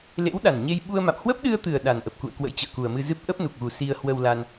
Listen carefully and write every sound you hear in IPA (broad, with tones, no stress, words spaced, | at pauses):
lḛ˧˥w ɗa˨˩nɲe˧j ɓu˧ə̯ma̰˧˨m hwə˦˥p̚ɗɨ˧ə̯t̪ɨ˨˩ə̯ ɗa˨˩nʔə˨˩p̚kṵ˧˨ə̯kwə̰˧˥j t͡ɕə̰ː˧˨ku˨˩ə̯mɨ˧zɨ˦˥p̚ ʔə˦˥p̚nu˨˩k̚ɣu˨˩ si˧ə̯hwə˧wla˧n